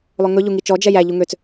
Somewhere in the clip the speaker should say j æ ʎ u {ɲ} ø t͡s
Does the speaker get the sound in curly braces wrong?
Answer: yes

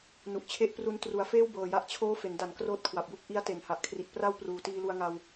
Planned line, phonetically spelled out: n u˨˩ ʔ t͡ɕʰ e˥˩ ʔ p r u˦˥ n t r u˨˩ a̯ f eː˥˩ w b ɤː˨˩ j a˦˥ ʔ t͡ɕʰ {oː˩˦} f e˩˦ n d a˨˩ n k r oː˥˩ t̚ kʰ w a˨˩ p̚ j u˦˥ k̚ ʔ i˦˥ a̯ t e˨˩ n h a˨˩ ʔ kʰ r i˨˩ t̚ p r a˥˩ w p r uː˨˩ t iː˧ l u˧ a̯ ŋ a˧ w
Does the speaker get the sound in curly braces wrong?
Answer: yes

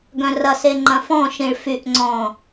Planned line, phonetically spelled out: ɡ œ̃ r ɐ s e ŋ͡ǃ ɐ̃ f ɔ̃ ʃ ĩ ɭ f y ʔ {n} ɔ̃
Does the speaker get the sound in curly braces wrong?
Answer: yes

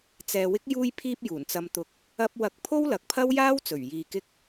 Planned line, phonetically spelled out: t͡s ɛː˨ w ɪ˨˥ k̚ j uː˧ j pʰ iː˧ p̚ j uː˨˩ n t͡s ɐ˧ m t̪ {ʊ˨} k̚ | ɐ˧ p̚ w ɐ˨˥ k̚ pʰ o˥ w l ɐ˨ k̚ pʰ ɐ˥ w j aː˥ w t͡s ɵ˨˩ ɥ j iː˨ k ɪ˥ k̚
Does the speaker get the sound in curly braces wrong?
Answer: yes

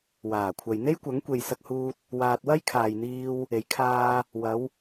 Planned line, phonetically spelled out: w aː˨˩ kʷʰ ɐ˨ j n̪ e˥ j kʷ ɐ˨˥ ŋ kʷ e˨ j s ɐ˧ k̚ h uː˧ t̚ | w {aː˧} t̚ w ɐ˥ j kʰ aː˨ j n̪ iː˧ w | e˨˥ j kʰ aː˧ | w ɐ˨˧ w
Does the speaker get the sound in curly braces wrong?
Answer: no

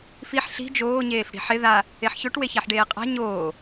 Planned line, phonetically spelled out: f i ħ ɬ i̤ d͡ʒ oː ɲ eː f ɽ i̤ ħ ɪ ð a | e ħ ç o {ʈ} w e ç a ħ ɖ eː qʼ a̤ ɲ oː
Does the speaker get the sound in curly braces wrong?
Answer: no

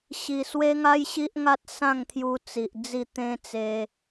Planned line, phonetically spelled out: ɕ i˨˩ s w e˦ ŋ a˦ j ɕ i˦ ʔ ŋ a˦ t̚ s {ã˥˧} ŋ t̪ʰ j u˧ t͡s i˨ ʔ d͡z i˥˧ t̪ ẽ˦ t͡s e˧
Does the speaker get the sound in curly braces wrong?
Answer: no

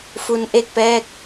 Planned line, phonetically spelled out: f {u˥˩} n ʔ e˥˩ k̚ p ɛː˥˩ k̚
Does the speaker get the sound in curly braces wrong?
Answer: yes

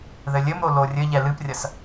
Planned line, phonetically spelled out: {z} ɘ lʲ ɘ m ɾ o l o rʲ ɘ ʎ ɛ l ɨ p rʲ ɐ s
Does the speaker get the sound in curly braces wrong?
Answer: yes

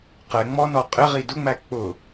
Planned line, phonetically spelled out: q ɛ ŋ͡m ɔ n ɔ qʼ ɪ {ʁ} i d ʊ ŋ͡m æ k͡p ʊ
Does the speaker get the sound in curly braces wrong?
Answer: no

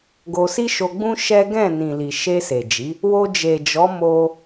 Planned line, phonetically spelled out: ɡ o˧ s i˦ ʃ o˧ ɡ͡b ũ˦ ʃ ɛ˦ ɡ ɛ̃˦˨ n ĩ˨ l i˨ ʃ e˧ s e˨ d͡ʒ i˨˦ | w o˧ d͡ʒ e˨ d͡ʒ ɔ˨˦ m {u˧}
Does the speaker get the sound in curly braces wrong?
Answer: yes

